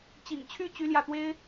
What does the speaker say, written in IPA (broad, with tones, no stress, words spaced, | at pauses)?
t͡ɕḭ˨˩ŋt͡ɕʰy˥˩ t͡ɕy˥ljä˥˩t̪we˥ɪ̯